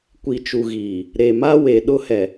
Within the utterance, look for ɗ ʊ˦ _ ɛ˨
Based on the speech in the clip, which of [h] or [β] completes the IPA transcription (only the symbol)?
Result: h